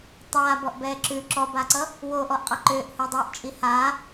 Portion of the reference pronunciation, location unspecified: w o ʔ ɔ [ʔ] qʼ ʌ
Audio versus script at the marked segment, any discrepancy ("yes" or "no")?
no